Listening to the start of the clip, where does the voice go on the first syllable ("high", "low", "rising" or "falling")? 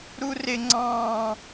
high